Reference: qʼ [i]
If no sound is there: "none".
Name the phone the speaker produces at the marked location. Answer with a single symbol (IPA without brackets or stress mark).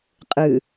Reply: ɨ